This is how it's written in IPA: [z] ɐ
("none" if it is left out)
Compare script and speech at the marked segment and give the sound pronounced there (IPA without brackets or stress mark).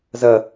z